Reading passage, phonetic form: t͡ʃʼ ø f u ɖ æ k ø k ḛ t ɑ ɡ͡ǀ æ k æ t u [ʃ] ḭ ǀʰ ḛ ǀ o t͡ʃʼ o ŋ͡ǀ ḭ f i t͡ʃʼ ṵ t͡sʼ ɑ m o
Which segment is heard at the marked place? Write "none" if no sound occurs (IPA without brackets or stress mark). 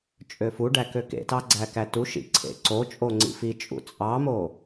ʃ